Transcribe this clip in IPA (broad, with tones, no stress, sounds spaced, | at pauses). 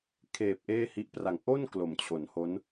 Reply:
kʰ eː˨˩ p̚ ʔ eː˥˩ h i˦˥ ʔ p r a˨˩ ŋ ʔ o˥˩ n k l o˩˦ m t͡ɕʰ o˩˦ n h o˦˥ n